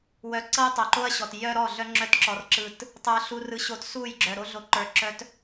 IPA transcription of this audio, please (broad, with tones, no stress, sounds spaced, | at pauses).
w œ˧ ǀ ɤ˦ j tˤ ə˞˨ ǃ o˦ ɐ̯ ɕ ɔ˨ t j œ˦ ɾ ɔ˦˨ ɮ œ˦ ŋ͡ǁ œ˧ t ǁ ɔ˨ r ǁ ɯ˨ t | tˤ ə˞˨ ɬ u˨ r ɯ˧ ɕ o˧ t s u˦˨ j ɡ͡ǁ œ˨ ɾ o˧ ɮ o˨˦ ǃ ə˞˨ ǁ œ˧ t